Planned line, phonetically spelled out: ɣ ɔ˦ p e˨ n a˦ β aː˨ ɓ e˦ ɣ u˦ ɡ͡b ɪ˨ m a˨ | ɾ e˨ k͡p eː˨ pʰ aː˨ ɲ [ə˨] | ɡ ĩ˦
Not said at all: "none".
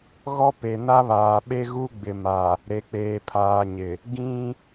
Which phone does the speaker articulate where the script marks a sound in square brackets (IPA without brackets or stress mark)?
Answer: ɪ˨